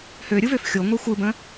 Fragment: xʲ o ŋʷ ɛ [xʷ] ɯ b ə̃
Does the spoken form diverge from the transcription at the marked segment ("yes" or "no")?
no